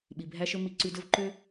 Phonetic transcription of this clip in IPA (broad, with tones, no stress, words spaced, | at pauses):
ɓi˨bʱæ˦ʃɵ˦ mi˧ǀy˧dɵ˦v ǃø˦